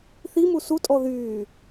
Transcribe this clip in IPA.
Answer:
θimu sutʼɔ ðyː

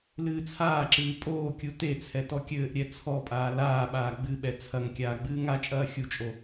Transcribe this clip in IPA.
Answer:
lɨːt͡sʰaːǁɨː pʼoːkʲu tet͡sʰɛ tɔkʲɘːʔɾʲɛ t͡sʰɔpʼaː laːɓaː ɡ͡bɨɓɛ t͡sʰɐŋ kʲaːɡ͡bɨːŋat͡ʃʼɐː xʲut͡ʃʼo

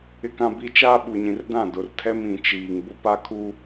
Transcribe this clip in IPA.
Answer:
ɪ˦kã˦bi˦ t͡ʃaː˦ɓu˨ɲĩ˨rdã˦˨ dʊ˨rtʰɛ˦m ĩ˨t͡ʃiː˨ŋ bʊ˦pa˦kʰu˦

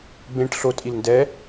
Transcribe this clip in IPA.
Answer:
bẽʈ ɬo tʼilndɛ

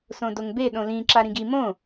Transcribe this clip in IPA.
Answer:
sõdoŋbe ɗõlĩ ǁaɾĩɡi mõ

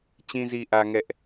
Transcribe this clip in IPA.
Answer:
t͡ɕĩ˦zi˦ʔä˦ŋɛ˦ʔ

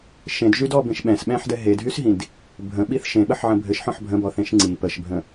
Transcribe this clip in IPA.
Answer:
ʃẽdʒydɔbẽʃ ɓɛ̃sɓɛ̃ħdɛ ɦedɦysɦĩd | bʱə̃ɓiθ ʃẽɓəħʕə̃ bʱɘʃħɔ̃ħ bʱə̃bɔθẽʃ ŋ͡ǀi pəʃbʱə̃

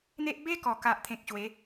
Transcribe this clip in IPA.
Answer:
n̪e˦ʔ be˦kɔ˨˩ka˨ʔ t̪ʰẽ˨k̚ ɕwe˨˦

